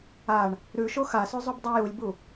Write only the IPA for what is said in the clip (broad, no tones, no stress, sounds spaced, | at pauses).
a ɳ | ɾ ʉ ʃ o x a s ʉ zˤ u b dˤ a j u lʲ b u